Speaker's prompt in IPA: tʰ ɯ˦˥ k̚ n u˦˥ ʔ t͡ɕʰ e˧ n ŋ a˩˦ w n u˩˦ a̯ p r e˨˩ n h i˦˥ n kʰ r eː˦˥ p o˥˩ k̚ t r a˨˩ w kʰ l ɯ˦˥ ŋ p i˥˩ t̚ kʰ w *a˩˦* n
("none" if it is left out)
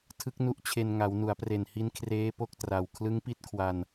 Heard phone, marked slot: a˧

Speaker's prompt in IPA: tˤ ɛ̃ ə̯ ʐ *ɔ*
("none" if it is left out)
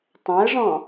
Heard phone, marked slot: ɔ̃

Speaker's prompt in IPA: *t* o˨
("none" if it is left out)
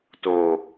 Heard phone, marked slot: t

